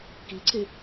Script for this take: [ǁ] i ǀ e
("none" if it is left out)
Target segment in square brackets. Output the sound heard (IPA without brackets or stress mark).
k